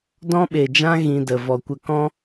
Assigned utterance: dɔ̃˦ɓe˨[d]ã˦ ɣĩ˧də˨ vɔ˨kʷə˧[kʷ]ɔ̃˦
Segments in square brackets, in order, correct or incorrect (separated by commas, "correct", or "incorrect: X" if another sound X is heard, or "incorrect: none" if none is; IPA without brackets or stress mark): incorrect: d͡ʒ, incorrect: k